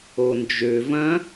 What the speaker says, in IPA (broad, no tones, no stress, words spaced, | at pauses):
ond͡ʒø vɐ̃